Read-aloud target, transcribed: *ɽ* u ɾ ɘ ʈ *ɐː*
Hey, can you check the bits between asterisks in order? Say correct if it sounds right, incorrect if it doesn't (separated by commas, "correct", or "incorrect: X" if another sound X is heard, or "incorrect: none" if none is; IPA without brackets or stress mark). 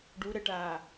incorrect: ɖ, incorrect: aː